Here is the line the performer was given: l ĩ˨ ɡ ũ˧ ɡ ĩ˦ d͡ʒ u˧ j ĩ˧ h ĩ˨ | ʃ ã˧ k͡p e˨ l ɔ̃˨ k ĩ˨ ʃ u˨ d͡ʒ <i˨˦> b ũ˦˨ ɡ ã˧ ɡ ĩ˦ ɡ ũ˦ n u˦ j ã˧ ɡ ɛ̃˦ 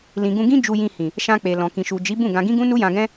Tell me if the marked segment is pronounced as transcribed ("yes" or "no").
yes